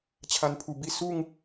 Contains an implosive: no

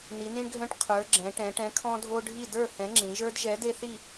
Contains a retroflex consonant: yes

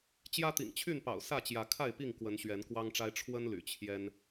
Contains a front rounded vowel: yes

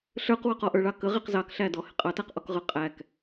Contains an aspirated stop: no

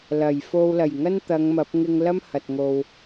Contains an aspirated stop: no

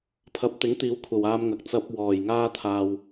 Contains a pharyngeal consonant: no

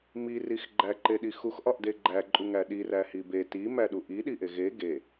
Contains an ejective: yes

